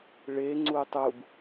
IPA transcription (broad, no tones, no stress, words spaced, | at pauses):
ɭe ŋ͡ǀutˤub